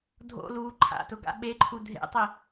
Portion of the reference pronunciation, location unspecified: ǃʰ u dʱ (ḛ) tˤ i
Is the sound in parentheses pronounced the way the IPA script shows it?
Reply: yes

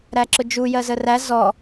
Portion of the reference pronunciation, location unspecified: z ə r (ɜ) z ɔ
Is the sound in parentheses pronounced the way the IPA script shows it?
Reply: no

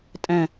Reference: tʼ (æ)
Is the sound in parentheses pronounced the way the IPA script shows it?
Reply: no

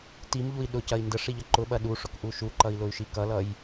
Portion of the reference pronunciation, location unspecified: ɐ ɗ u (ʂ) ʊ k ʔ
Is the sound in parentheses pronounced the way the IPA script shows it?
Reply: yes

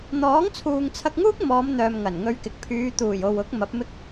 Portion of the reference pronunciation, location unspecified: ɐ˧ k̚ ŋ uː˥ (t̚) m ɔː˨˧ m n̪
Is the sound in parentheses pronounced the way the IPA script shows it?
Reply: no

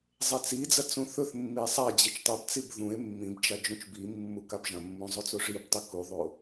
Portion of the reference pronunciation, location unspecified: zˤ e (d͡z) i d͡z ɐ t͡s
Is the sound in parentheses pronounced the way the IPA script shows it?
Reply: no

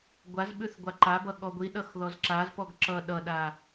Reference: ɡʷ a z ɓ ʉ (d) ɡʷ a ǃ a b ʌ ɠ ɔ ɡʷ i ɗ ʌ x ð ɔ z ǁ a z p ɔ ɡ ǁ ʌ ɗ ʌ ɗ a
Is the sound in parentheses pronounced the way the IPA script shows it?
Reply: no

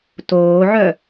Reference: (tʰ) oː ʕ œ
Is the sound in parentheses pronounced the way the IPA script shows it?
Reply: no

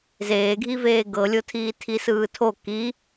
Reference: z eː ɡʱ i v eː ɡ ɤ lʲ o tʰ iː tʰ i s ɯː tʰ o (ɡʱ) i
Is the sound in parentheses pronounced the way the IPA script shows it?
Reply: no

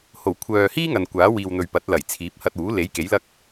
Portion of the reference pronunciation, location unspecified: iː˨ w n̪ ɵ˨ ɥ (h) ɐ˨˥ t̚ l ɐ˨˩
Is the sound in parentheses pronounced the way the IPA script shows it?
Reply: no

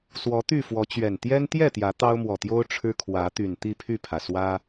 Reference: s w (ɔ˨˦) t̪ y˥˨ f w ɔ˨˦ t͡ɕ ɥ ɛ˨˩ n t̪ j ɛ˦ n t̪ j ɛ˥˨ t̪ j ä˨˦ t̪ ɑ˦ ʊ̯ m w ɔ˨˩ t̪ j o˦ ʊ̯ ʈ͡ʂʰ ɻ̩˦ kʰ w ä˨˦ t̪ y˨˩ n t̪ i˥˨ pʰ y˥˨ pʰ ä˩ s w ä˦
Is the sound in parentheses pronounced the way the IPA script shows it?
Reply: yes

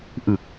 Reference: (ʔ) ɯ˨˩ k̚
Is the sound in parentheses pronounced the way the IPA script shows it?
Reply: yes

